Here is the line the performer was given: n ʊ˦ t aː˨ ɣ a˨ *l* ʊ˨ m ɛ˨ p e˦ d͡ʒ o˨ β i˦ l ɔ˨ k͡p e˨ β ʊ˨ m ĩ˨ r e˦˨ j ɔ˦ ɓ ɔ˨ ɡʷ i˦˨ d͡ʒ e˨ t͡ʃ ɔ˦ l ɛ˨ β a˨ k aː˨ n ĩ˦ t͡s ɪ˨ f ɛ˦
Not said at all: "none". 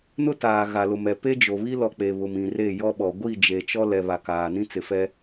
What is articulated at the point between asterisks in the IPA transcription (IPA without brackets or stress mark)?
l